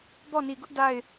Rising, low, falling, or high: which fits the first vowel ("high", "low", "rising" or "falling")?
falling